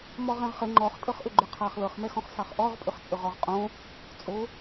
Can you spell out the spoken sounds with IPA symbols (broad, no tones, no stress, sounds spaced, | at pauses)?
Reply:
m ɔ ʁ ɛ̃ ʁ χ ə ŋ͡ǃ ɔ χ tʼ ɤ χ ʔ ʏ ɡ͡ǃ ʏ qʰ ɑ χ l ɤ χ m ɛ x ɔ̃ χ s ɑ χ ʔ ɔ ʁ pʼ ʏ χ t͡sʼ ʏ ʁ ɔ ʁ qʼ õ | t͡sʼ o